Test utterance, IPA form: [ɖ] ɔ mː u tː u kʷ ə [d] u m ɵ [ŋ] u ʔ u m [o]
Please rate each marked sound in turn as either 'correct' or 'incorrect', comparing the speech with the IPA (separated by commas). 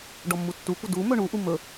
correct, correct, incorrect, incorrect